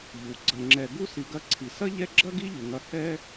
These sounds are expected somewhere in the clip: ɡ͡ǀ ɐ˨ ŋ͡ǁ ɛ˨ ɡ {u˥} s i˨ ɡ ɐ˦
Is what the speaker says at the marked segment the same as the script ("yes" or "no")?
yes